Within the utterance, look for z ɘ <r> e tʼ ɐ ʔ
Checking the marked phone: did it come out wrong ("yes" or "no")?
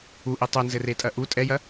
no